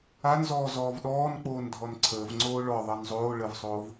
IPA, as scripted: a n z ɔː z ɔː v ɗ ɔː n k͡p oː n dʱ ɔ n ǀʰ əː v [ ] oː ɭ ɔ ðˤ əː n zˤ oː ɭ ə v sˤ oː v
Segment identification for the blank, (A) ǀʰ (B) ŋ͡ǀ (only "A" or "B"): B